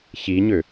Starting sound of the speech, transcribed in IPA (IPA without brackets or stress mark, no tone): ç